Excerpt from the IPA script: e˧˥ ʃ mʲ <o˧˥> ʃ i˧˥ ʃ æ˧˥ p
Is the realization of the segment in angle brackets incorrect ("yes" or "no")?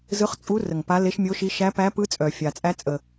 no